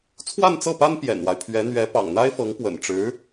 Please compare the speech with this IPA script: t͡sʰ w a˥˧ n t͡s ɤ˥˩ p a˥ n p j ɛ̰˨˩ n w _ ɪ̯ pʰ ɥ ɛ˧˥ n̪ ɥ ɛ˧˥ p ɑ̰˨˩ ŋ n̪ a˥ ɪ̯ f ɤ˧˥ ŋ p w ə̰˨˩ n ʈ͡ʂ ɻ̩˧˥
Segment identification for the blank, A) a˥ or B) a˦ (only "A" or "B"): B